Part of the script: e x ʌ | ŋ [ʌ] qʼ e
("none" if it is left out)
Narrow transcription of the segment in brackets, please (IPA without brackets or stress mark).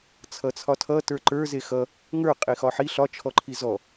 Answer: ə˞